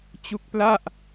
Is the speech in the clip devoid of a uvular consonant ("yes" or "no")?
yes